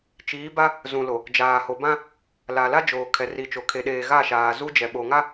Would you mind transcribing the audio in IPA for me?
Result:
t͡ʃ iː˨˦ b a˦ | z ũ˨ l o˨ | d͡ʒ aː˨ h o˨ b ã˦ | l a˨ l a˦ d͡ʒ oː˨ kʰ ɛ˨ r i˨ t͡ʃ o˨ kʰ e˨ ɗ eː˨ ɣ a˦˨ ʃ aː˨ z u˦ d͡ʒ ɛ˨ ɓ o˨ ŋ a˦

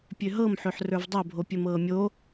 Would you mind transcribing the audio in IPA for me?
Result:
pʲ ø ɦ ɤ m ħ ø ħ r ə˞ v dˤ o bʱ o pʲ ɘ m ɤː mʲ o

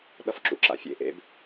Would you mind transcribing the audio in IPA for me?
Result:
ɗ ʌ f ǁ ṵ ǁ a̰ fʲ ḛ ʔ ḛ b

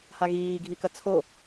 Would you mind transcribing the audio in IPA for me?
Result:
h a ɣ iː ɡʱ i k ɐ t͡sʰ o

